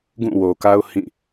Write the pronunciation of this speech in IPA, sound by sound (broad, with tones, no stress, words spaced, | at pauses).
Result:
ɡũ˦˨wo˨ka˦ʊ̯ hĩ˦˨